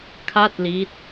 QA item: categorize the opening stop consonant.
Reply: aspirated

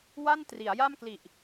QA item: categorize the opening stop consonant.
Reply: plain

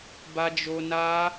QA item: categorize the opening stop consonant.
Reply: plain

